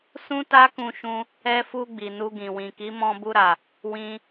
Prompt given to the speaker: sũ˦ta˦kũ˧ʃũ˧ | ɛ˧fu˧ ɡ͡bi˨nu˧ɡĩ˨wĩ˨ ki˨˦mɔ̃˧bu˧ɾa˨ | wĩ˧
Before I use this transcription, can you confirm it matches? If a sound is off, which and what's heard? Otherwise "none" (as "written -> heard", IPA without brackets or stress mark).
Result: none